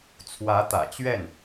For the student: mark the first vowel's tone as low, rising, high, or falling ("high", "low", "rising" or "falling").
rising